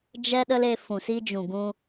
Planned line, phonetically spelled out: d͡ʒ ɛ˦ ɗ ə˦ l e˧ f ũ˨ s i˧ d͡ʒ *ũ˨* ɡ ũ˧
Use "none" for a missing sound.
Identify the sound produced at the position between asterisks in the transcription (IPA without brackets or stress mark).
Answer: ũ˨